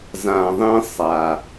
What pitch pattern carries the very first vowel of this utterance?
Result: low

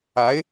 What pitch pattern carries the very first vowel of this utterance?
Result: rising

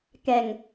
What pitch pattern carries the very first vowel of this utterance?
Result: low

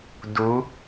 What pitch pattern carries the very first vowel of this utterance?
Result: rising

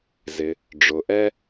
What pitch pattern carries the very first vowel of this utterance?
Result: low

